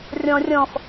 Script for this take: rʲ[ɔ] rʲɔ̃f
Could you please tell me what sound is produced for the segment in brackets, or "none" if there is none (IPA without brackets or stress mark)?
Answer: ɔ̃